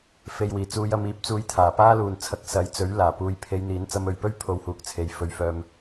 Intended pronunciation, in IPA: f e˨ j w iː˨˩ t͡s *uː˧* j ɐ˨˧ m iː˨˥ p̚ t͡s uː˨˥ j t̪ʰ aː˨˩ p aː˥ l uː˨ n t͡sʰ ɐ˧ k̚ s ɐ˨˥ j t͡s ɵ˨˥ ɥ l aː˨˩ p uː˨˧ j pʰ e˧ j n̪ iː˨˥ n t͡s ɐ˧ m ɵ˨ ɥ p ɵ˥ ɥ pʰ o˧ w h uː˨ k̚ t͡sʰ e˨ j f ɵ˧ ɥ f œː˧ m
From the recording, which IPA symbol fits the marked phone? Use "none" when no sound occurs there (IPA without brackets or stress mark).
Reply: uː˨˧